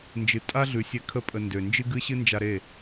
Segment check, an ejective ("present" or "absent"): present